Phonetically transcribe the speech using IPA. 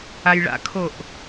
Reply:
a j ɭ a̰ kʰ o ʔ

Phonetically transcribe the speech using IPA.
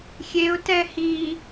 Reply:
xʲ e ʊ̯ t ɛ h i

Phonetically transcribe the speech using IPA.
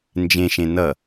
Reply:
n d͡ʒ ẽ ʃ ẽ n ʌ

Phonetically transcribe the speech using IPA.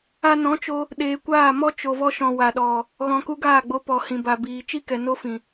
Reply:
a˧ n ɔ̃˨˦ t͡ʃ o˧ | ɗ eː˨ kʷ aː˦˨ m ɔ˦ t͡ʃ o˨ v ɔ˧ ʃ ɔ̃˨ w a˨ ɗ ɔ˨ | ɣ ɔ̃˨ k u˧ ɡ aː˦˨ ɡ͡b o˧ p ɔ˨ h ĩ˨ b a˨ b iː˨ t͡ʃ i˦ k ɛ˨ n o˦ f ĩ˨

